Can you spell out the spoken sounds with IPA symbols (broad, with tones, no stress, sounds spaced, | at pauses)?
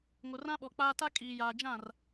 ŋ o˨ r ã˦ ɓ ɔ˨ k͡p aː˦ t a˦ kʼ iː˨ j aː˨ d͡ʒ ã˦˨ r